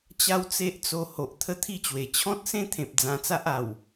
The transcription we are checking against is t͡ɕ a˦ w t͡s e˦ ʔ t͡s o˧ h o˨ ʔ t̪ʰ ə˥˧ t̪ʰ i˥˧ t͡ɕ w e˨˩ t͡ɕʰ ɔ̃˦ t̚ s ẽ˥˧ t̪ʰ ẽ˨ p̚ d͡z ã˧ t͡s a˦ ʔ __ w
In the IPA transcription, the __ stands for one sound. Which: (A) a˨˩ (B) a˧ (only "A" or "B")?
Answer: A